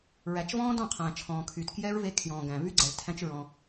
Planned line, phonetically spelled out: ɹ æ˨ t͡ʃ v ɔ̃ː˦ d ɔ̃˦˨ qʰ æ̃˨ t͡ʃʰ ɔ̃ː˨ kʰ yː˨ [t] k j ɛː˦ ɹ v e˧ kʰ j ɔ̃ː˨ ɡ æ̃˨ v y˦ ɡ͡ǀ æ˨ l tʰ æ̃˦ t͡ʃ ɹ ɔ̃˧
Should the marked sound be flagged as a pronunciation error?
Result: no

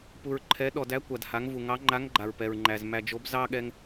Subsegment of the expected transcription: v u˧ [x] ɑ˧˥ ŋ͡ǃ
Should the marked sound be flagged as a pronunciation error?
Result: yes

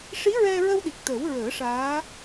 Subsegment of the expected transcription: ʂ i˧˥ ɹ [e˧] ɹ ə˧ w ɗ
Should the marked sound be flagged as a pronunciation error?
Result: yes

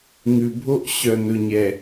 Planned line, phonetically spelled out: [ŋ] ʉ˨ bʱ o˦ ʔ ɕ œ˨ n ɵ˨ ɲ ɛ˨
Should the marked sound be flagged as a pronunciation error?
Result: no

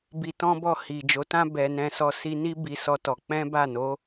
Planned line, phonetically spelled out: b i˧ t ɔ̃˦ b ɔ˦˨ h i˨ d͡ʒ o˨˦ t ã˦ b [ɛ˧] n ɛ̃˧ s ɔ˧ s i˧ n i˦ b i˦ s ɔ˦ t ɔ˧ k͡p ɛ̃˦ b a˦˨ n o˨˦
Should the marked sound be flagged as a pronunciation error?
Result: no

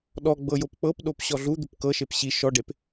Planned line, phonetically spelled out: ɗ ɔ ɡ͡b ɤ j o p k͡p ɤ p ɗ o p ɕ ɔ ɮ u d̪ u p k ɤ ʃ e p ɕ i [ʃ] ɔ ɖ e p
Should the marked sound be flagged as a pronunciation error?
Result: no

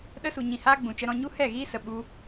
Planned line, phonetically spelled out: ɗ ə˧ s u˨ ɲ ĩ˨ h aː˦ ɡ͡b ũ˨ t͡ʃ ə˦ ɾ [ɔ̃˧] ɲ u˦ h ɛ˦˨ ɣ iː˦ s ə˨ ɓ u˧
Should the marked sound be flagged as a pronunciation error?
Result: no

